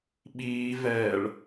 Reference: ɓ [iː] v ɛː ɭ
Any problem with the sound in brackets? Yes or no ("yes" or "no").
no